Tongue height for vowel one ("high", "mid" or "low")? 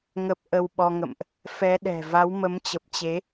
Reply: mid